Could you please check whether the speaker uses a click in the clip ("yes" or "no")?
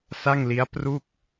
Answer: no